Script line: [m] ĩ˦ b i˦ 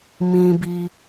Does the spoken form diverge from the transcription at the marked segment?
no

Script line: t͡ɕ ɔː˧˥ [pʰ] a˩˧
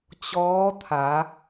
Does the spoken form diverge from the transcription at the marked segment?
yes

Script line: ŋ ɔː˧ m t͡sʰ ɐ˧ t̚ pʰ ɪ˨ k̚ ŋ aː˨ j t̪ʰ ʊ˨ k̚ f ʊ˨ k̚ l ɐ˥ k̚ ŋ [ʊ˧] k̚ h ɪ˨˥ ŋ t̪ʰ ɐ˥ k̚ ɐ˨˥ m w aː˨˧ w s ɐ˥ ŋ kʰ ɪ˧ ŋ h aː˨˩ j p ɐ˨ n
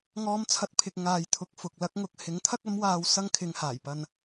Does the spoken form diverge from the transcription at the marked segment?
no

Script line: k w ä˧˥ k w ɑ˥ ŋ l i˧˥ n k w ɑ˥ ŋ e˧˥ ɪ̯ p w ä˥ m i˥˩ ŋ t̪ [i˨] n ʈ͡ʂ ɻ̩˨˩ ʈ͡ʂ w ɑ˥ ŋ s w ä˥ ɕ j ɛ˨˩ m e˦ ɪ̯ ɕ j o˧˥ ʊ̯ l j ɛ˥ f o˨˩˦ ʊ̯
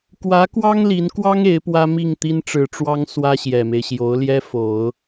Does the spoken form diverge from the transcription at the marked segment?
yes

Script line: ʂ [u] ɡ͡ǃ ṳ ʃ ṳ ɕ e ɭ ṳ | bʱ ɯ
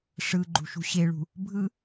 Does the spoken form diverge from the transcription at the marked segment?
yes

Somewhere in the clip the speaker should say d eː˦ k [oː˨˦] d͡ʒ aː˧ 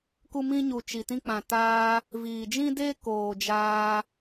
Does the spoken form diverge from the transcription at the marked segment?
yes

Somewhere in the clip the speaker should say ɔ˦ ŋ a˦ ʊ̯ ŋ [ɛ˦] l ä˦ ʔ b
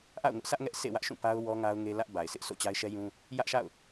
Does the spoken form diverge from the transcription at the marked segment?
yes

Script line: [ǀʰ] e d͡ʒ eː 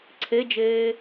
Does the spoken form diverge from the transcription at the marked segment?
no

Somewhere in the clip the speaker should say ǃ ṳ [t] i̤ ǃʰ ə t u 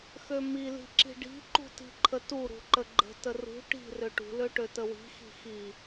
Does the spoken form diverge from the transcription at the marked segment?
no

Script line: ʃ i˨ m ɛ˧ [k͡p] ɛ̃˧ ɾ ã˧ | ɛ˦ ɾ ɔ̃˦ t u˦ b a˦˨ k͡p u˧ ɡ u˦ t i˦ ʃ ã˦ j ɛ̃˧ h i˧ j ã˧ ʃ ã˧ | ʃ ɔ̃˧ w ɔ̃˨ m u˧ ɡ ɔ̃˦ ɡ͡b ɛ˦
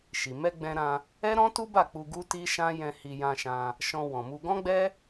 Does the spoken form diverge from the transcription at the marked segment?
yes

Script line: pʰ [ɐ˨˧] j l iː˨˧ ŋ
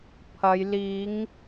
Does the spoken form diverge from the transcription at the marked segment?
no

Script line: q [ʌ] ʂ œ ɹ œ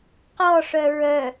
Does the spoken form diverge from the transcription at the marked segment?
yes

